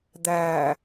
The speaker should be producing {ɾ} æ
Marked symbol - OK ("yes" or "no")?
no